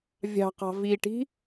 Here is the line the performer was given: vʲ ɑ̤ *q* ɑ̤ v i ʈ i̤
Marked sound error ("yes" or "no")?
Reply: no